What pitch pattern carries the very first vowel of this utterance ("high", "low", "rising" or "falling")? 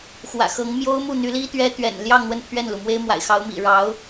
low